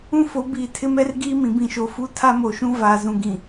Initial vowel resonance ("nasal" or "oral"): nasal